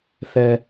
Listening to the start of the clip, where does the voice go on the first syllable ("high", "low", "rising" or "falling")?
low